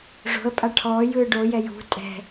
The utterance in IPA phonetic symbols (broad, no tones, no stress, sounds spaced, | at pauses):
ʐ o̤ ə̯ pʼ a ʈʰ ɔː j ɯː ɖ o j ɛ j ṳ tʼ ɛ̤